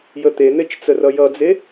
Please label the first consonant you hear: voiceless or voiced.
voiced